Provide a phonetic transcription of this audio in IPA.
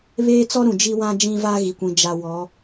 βeː˦t͡sɔ˦ɾũ˨ d͡ʒi˦ wã˦ d͡ʒĩ˦va˦ ɣi˨kʷĩ˨ d͡ʒa˨ wɔ˨˦

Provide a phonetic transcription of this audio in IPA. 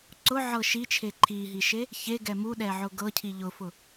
ǀʊʕɤ ʃit͡ʃʰe ǃʰiɦiʃe | çeɡɛ muɗɛʕʊ ɡɤcʰi ʎʊfʊ

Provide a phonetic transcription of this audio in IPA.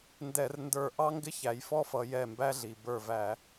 ndɛ˧˩˧rndə˞˧˩ ʔɑ˦ŋɡɪ˦ çæ˩˧jfɔ˦fʌ˩˧ jɛ˧˩mbæ˦ɮi˩ bə˞˧˩væ˧˩˧

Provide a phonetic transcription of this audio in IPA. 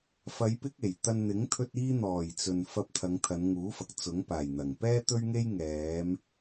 fɐ˨˧jpɪ˧k̚e˨˩j t̪ɐ˨n n̪ɪ˨˥ŋt̪ʰɵ˧t̚ iː˧n̪ɔː˨˩jt͡sɵ˨n fɐ˧p̚t̪ʰɐ˨˧ŋ t̪ʰɐ˨˧nŋuː˨˥fɐ˨k̚ t͡sʊ˨˥ŋpaː˨˩jn̪ɐ˨˩ŋ pɛː˥t̪ɵ˥ɥŋe˥j ŋɛː˨˧m

